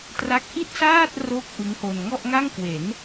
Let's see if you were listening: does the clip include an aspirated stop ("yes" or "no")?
no